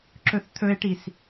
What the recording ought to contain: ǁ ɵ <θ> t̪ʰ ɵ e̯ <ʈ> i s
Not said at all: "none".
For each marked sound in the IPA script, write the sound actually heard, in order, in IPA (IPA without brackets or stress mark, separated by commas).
θ, ʈ